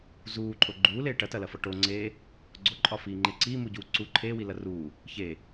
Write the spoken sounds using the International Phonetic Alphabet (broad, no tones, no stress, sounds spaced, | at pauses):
z uː ǃʼ o ɡ͡ǃ uː l eː ʈ ɐ t ɐ l ɐ f ɒ ʈ o ŋ͡ǀ eː | ɡ͡ǀ o ǃʼ ɒ f iː ŋ͡ǃ e ǀ iː m u ɟ uː ǀ u ǃʰ eː w i l ɐ r uː | ç e